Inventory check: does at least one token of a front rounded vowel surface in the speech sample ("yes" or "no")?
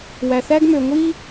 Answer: yes